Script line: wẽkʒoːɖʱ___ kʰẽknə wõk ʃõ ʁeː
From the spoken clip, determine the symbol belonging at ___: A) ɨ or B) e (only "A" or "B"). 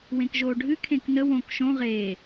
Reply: A